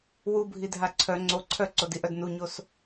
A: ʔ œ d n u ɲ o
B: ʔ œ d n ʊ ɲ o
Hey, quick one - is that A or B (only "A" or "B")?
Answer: A